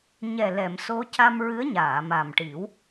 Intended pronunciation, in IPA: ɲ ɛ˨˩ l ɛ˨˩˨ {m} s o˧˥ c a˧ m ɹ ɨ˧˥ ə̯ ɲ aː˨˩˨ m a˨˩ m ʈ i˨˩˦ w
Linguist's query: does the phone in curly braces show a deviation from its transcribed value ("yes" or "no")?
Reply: no